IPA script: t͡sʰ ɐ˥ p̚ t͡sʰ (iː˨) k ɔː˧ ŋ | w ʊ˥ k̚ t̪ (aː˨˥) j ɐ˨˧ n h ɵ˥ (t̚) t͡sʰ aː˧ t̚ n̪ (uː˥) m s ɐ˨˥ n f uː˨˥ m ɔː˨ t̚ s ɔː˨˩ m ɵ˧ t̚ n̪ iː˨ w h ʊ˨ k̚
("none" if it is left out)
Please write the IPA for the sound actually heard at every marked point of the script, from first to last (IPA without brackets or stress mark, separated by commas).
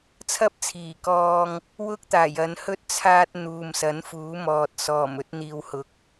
iː˨˩, aː˨˩, t̚, uː˨